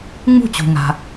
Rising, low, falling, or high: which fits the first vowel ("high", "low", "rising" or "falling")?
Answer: falling